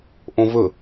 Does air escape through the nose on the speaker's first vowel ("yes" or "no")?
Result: yes